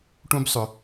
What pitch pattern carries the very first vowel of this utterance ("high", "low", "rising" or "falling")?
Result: high